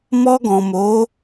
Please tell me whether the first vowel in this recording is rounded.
yes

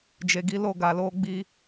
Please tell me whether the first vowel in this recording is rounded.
no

